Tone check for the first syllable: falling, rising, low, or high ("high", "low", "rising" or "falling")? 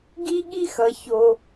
high